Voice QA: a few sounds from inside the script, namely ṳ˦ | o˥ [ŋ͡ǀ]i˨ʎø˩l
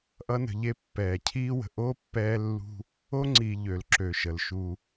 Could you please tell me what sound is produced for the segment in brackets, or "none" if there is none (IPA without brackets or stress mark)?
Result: ŋ͡ǀ